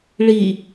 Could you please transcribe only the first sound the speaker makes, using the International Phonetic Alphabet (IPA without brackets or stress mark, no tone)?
ɭ